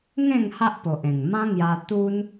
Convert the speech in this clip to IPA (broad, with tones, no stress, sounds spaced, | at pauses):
ŋ ẽ˥˧ ŋ h a˦ ʔ p o˨ ʔ ẽ˨˩ ŋ m ã˦ ŋ j a˧ t̪ u˦ n